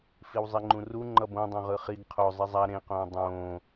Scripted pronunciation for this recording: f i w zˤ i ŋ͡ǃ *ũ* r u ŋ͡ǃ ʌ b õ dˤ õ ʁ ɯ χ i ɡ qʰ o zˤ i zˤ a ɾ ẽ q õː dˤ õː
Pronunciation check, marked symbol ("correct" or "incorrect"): correct